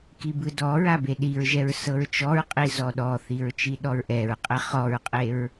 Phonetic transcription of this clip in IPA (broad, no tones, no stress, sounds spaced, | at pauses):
k i b ɯ d ɔ ɹ a b e ɗ i ɹ ʒ ɛ ɹ s ɤ ɹ t͡ʃ ɔ ɹ qʼ i z ɔ ɗ ɔ θ i ɹ t͡ʃ i ɗ ɔ ɹ ʔ ɛ ɹ qʼ ɛ χ ɔ ɹ qʼ e ɹ